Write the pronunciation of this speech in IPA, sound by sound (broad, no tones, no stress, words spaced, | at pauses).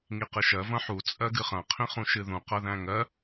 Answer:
ŋiqɨʃɜ vɐ̃ħu t͡sʼɜɡɨχɐ̃ qʰĩχũʃɨðũ qɐðæ̃ŋɜ